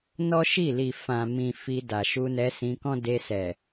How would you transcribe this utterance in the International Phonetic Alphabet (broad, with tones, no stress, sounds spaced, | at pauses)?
n ɔ˦ ʃ i˦˨ l i˨ f ã˨ m ĩ˨ f i˧ d a˨ ʃ u˧ n ɛ˧ s ĩ˧ k ɔ̃˦ d e˧ s ɛ˨